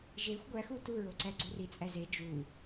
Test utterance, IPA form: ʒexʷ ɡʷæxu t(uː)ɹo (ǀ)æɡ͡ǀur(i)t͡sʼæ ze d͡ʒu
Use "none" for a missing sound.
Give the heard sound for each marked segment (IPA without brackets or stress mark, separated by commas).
u, ǀ, i